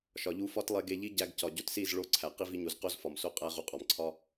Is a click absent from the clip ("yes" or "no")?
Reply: no